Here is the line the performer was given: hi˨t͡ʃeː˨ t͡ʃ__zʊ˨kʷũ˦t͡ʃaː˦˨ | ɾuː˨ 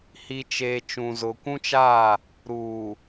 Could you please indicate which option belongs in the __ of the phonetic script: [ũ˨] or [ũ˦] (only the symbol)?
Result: ũ˨